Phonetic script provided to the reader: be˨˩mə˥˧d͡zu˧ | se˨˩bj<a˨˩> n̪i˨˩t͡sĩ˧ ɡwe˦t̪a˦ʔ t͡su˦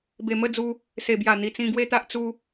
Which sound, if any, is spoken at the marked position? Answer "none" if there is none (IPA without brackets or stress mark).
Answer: a˨˩